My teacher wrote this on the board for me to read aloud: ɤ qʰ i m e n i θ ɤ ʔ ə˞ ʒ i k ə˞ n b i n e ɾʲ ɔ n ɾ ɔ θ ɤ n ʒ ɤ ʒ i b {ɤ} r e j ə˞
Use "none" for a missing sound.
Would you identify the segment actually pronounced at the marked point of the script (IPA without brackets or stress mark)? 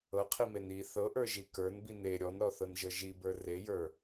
ə˞